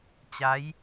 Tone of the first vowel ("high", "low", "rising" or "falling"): rising